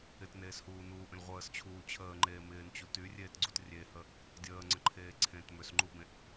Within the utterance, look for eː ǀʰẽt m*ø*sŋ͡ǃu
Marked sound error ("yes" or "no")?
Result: no